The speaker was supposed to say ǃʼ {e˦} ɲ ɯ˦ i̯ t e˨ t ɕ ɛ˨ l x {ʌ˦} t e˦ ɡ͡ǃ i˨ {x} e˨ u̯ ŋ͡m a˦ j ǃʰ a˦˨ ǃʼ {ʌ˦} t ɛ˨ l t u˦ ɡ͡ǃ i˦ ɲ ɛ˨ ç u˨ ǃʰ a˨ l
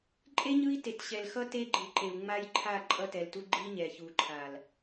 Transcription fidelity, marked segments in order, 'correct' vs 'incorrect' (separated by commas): correct, correct, incorrect, correct